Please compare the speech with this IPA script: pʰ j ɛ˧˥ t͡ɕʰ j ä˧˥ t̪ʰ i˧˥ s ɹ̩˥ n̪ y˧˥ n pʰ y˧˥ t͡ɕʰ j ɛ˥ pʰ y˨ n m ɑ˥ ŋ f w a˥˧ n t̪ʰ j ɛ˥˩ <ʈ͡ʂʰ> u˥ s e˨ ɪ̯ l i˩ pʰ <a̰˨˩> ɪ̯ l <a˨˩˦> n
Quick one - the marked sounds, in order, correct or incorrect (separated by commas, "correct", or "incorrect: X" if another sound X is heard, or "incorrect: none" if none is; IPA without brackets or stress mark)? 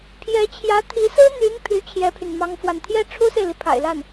correct, correct, incorrect: a˥˩